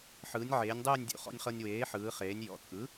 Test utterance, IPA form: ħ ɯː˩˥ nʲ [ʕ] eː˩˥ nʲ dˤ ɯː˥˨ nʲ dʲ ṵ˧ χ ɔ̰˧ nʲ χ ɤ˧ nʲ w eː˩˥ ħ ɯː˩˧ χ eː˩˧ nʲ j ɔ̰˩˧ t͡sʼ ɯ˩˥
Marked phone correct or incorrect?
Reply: correct